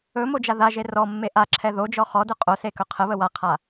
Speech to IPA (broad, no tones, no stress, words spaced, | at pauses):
ɵ mod͡ʒaðaʒe rɔmːe ʔa ǁʰɛðod͡ʒɔ χɔdɵ qʼose kɵqʰəβə waqʰa